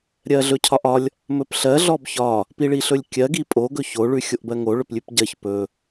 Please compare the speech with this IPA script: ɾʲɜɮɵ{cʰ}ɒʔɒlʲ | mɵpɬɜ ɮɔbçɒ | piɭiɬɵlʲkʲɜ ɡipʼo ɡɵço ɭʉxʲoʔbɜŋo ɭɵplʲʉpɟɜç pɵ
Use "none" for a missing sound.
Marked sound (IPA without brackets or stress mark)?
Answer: cʰ